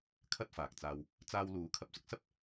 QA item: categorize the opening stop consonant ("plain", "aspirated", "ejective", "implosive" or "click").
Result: aspirated